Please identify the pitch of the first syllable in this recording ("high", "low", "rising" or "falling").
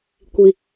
low